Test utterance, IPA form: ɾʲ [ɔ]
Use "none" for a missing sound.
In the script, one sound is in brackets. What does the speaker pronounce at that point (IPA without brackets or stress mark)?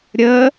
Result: ə